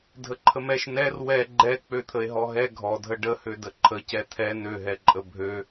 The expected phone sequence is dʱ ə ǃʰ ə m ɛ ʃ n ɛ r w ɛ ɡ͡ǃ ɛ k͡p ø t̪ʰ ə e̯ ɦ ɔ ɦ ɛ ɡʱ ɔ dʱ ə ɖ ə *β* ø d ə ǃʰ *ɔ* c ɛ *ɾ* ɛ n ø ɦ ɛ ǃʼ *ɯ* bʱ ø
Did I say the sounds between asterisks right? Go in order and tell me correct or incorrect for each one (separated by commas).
incorrect, incorrect, incorrect, incorrect